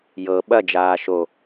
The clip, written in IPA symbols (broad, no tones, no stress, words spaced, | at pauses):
jɤ ɓɐd͡ʒaː ʃo